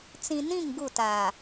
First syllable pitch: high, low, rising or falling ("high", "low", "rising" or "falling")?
low